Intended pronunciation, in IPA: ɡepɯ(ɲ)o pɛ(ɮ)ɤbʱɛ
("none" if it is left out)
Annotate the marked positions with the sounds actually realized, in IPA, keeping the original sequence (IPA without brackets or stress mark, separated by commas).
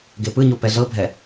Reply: ɲ, ɮ